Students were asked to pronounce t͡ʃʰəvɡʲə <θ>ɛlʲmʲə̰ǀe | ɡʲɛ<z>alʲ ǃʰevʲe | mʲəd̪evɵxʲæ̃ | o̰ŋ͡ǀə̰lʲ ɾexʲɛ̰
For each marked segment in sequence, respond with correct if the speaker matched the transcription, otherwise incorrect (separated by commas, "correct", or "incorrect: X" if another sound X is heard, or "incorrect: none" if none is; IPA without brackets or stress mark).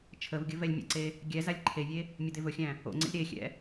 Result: incorrect: v, correct